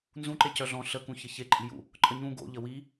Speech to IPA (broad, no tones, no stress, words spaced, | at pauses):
nzũǃe cœɮɔ̃ ɬəkũçə çeǃʼijṵ | ǃʼəɲũ ɡo̰ ʎəwi